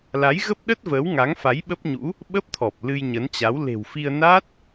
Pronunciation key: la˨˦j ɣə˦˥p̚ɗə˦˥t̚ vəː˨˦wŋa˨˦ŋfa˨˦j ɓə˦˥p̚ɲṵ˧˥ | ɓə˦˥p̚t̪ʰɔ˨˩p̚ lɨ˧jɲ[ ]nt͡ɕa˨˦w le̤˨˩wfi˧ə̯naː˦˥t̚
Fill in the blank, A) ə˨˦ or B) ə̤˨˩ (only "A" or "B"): A